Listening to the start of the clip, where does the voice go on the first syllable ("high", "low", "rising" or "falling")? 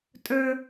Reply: high